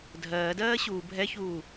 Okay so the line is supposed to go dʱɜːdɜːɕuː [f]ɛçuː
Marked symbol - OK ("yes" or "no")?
no